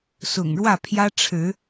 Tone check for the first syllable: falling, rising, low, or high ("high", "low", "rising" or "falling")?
low